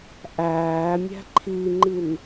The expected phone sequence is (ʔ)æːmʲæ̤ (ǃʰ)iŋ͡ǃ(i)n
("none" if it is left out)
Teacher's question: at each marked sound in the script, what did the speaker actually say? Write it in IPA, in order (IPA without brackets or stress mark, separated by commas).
ʔ, ǃʰ, i